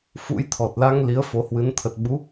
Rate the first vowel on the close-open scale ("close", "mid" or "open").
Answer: close